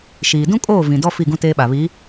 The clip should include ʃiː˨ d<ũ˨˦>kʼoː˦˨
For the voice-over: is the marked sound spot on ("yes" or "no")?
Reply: no